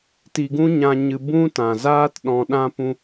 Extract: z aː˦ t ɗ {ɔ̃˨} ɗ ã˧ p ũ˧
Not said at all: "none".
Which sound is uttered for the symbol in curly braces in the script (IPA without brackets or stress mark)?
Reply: ɔ̃˨